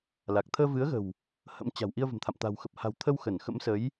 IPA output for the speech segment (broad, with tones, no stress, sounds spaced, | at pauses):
l a˨˩ k̚ t̪ʰ əː˧ v ɨ˨˦ ə̯ ɣ ə̤˨˩ w | h ə̰˧˥ m t͡ɕ a̤˨˩ w ʔ i˧ ə̯ v ə̤˨˩ m t̪ʰ a̰˧˨ m t̪ a̤˨˩ w x ə˨˩ p̚ h a̤˨˩ w t̪ʰ ə˧ w x ə˧˩ n x ə̰˧˥ m s ə˨˦ j